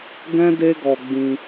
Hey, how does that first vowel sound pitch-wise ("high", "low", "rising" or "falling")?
high